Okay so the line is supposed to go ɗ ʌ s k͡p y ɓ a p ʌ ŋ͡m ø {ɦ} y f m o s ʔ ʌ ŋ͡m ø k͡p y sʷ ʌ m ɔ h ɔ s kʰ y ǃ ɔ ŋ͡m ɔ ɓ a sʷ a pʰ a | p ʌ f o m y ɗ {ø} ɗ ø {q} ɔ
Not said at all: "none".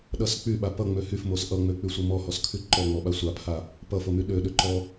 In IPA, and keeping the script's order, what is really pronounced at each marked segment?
h, ø, ǃ

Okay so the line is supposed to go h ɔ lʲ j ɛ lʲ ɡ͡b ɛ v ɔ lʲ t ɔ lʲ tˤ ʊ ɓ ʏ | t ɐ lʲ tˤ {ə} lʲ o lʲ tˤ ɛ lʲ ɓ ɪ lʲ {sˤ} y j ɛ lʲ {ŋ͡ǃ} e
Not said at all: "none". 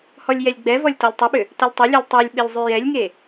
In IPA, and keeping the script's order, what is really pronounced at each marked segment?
ʊ, zˤ, ŋ

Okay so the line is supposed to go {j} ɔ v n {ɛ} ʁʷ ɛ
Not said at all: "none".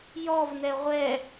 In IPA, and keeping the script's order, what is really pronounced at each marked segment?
j, ɛ

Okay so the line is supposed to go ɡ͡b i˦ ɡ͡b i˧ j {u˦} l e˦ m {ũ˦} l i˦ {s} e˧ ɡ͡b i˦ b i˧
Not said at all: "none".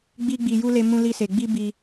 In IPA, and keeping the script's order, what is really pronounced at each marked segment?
u˦, ũ˦, s

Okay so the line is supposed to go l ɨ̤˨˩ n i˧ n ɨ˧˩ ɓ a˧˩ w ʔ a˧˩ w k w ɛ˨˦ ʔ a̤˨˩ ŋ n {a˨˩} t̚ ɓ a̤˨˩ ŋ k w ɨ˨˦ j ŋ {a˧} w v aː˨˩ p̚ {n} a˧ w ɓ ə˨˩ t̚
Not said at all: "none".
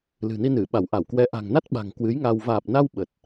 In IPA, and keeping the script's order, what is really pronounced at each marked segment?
a˦˥, a˧, n

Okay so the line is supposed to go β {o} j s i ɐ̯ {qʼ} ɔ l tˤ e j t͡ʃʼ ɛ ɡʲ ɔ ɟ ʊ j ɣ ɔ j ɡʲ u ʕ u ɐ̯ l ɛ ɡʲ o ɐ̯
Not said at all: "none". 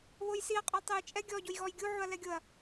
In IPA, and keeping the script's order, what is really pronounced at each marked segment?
o, qʼ

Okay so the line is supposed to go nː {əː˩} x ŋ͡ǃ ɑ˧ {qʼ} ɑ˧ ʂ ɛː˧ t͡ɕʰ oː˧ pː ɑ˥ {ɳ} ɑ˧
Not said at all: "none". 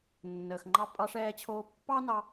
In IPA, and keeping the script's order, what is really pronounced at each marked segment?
əː˩, pʼ, n

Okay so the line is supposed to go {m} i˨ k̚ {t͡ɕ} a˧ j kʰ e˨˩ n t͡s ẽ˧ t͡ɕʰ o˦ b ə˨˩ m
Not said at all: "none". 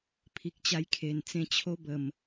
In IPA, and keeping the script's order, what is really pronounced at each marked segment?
pʰ, t͡ɕ

